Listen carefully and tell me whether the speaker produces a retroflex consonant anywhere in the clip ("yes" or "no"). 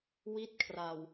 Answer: no